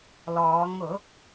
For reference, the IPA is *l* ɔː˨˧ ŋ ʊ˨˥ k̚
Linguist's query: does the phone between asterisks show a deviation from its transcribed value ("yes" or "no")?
no